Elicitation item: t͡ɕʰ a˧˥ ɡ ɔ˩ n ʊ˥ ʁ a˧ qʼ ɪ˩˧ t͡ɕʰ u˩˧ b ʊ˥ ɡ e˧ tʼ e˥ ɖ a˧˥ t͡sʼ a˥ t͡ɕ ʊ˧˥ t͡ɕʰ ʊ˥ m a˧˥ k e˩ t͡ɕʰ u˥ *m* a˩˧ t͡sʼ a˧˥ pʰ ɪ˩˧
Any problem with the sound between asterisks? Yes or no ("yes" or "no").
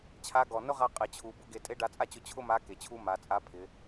no